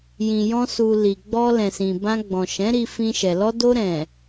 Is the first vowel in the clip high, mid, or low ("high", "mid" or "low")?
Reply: high